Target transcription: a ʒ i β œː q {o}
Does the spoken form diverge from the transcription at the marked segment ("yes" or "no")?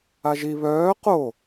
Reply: no